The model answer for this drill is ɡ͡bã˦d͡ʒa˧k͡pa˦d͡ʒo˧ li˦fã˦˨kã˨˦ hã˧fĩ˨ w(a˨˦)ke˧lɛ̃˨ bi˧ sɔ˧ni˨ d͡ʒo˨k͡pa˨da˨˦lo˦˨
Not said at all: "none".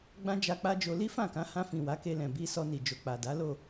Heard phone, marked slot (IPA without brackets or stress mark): a˨˦